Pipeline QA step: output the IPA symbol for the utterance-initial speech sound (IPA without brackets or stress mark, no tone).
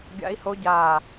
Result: ɡʲ